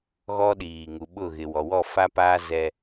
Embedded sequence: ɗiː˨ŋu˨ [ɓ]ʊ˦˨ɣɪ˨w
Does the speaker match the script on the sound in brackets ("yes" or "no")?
yes